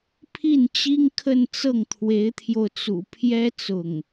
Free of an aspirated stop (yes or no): no